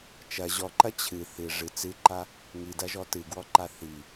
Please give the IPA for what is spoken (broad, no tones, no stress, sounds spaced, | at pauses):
t͡ʃ ɐ ʑ ɔ ǃ ɐ t͡ɕʰ ɨ θ ɨ ʐ ɨ t͡s ɨ ǃ a | ŋ i d ɐ ʒ ɔ t ɨ ɡ w ɔ ǃ a θ i